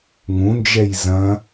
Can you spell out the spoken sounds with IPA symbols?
ŋũnd͡ʒɛj zɐ̃

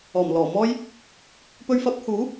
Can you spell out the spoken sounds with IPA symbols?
ɔː˨˩mlɔː˨˩ mɔː˥j | pɵ˧ɥfɐ˨˥p̚huː˨˥

